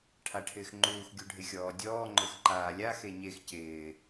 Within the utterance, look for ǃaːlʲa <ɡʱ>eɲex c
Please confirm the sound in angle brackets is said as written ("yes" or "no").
no